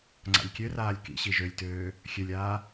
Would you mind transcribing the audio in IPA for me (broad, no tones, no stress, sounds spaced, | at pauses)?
ŋ͡ǀ a̰ lʲ kʲ ø r aː lʲ k ḭ ɕ i ʒ ø lʲ t øː | xʲ ø lʲ aː